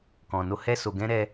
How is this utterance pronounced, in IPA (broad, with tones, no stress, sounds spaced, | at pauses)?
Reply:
k ɔ̃˨ n o˧ h ɛ˦ s o˧ ɡ ɛ̃˦ ɾ ɛ˦